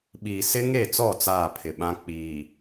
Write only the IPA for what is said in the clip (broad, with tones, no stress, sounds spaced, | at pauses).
ɓ iː˨ s ɪ˦ ŋ e˦˨ t͡s ɔ˦˨ t͡s aː˦˨ pʰ ɪ˨ ɓ ã˦ k͡p iː˨